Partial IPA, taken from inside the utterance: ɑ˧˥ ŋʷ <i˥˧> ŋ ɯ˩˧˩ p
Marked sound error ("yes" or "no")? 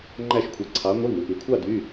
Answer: yes